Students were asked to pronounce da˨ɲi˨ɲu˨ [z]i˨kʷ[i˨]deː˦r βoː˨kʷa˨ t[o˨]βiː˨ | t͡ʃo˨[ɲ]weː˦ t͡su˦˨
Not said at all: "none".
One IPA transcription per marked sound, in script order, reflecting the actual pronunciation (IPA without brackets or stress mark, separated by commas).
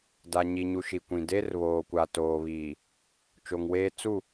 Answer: ʃ, ĩ˨, oː˨, ŋ